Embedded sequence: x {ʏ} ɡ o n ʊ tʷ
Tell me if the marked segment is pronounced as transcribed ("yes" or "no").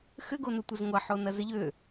yes